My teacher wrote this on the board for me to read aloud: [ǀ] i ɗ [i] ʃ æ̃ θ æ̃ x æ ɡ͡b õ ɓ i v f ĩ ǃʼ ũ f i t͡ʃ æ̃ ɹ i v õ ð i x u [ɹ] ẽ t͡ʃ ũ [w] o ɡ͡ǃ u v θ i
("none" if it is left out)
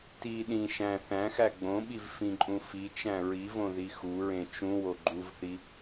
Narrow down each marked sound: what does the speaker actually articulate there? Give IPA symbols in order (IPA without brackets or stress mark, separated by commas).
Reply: t, ĩ, ɹ, w